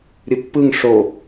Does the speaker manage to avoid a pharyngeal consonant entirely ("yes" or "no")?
yes